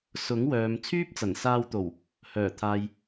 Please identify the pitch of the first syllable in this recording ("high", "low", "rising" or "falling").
rising